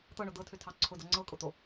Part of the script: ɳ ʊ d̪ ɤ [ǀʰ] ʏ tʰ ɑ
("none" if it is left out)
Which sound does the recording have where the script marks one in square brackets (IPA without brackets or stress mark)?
tʰ